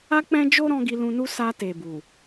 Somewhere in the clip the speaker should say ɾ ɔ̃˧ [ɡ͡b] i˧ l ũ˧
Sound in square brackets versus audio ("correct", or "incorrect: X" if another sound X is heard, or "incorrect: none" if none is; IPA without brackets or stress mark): incorrect: ɡ